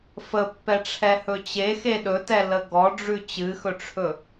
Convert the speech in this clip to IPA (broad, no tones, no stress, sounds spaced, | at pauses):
f ə pː ɛ ʈ͡ʂʰ ɛ h ɵ t͡ɕ e x e ɗ ɵ t ɛ l ə ɡ ɔ ɖ͡ʐ ʉ t͡ɕ ɨ x ɵ ʈ͡ʂʰ ɵ